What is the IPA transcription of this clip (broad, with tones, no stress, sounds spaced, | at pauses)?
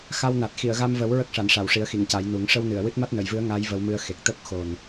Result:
x a˧ w n a˨˩ t̚ x i˨˩˨ ə̯ ɣ a˧ m v ə˨˩˦ w ɹ ə˦˥ k̚ ʂ a˨˩˨ n ʂ a˨˩˨ w ʂ i˨˩˦ ə̯ x i˨˩˨ ŋ c a˨˩˦ j n u˨˩˦ ŋ ʂ ə˧ w n ɨ˨˩˨ ə̯ w ɨ˦˥ t̚ m a˦˥ t̚ n ə˨˩˨ j v ɨ˧˥ ə̯ ŋ a˧˥ j v ə˧˥ w m ɨ˧ ə̯ x e˨˩ k̚ t̪ ə˦˥ k̚ x o˨˩ n